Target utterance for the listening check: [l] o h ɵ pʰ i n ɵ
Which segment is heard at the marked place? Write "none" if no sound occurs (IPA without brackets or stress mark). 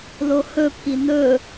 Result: l